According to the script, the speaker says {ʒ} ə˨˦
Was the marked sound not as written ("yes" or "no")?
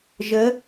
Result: no